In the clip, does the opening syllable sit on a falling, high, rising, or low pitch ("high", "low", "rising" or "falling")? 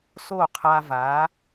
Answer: falling